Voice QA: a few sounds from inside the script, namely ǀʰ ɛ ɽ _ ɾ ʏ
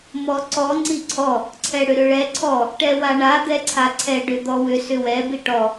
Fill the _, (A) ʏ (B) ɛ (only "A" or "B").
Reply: A